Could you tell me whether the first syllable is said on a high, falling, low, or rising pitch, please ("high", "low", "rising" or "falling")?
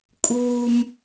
high